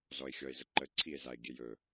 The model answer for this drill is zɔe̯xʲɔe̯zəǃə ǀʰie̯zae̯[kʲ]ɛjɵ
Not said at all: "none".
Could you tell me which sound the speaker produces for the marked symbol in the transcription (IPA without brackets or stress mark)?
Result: ɡʲ